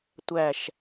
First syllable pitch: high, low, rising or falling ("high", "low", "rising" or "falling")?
low